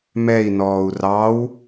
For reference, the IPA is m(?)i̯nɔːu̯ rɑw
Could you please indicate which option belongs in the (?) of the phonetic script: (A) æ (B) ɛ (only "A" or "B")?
B